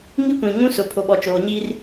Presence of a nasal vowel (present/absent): present